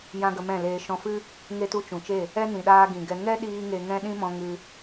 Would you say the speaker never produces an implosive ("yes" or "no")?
no